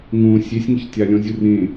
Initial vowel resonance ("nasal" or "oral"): nasal